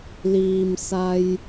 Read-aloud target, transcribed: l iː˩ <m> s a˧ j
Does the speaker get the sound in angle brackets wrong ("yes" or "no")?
no